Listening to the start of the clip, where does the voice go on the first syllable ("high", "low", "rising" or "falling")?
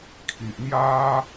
low